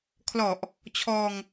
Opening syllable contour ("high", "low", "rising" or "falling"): low